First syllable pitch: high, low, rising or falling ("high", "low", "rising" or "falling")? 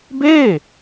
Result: falling